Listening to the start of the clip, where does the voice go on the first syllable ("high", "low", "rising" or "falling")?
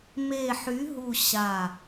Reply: low